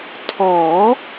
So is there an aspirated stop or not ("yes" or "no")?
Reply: yes